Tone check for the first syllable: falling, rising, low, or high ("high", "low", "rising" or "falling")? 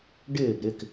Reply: falling